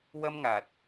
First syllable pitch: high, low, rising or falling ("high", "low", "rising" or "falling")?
high